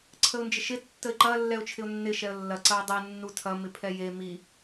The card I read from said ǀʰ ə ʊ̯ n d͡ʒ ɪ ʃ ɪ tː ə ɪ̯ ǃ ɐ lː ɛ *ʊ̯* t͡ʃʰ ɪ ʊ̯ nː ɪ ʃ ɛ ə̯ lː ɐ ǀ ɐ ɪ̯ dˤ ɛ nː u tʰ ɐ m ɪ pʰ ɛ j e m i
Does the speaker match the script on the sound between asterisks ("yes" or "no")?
yes